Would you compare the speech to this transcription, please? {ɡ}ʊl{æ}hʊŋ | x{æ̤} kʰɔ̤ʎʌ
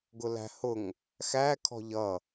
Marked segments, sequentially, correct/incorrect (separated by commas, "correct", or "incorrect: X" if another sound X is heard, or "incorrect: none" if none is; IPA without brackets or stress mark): correct, incorrect: æ̤, incorrect: æ